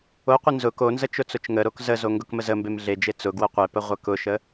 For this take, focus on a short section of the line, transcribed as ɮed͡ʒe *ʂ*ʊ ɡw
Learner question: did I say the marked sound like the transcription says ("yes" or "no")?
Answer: no